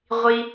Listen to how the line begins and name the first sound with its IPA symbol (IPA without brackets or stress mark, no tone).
ʁʷ